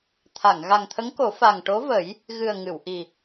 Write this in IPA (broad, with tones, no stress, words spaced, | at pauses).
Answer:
t̪ʰa˨˩˨ŋ ɣa˨˩ŋt̪ʰə˧˥ŋko˨˩˦ fa˨˩ŋʈo˧˥və˨˩˦j | ɣɨ˨˩ə̯ ŋɨ˨˩˨wʔi˨˩